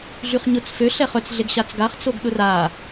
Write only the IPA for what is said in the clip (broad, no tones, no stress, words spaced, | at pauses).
ɮyχɲʊt͡s fø ɬɛχœt͡s ɮeɡɕat͡sɡaχ t͡soɡɗʊra